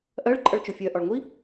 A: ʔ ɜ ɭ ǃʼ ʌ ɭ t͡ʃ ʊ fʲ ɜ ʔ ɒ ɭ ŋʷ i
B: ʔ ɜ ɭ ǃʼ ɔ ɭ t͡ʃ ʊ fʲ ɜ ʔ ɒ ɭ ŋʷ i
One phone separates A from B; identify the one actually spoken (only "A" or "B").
A